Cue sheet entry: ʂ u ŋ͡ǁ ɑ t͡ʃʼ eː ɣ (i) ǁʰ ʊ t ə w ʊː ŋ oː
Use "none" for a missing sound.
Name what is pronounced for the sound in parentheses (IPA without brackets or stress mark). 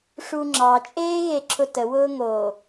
e